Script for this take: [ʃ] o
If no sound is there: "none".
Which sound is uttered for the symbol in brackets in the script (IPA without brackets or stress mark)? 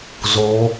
z